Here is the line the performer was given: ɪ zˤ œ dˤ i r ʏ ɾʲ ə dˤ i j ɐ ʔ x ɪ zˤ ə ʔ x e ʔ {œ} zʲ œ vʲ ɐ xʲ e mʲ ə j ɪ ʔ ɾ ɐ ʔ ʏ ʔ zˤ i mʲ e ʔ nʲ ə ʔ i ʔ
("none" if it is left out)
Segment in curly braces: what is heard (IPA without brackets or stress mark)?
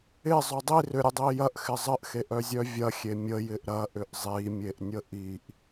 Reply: œ